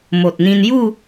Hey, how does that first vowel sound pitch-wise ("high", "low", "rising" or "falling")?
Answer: low